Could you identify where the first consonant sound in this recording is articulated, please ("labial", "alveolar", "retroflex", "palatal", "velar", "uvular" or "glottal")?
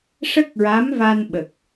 retroflex